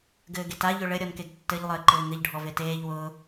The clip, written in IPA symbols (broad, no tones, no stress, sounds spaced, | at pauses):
ɡ ɘː ɡ e t a ʎ ɵ ɭ ɘ ɾʲ ɔ n k e ɡ tː ɘ ʎ lˠ ɘː ǃ ɘː ŋ ɘ ʎ ɖʱ ɔ v e t eː ʎ w ʊː